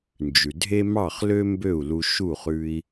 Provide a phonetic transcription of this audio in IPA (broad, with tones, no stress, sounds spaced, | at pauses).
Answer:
n d͡ʒ ʉ˩ dʱ e˥ m ɑ˥˩ χ l ø˥ m b ø˥˩ u̯ l u˧ ʃ u˥˩ χ ʉ˧ i̯